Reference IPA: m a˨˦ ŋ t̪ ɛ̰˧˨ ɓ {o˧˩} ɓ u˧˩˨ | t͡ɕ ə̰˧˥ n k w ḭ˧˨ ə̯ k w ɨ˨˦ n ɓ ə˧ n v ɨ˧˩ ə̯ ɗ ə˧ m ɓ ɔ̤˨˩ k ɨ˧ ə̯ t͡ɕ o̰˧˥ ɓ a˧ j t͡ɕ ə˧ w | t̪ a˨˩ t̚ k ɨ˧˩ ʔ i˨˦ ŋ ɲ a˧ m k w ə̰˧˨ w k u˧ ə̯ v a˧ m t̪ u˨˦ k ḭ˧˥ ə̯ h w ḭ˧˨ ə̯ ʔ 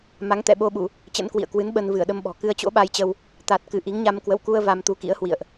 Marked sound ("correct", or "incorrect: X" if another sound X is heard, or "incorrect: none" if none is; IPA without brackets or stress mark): incorrect: o˧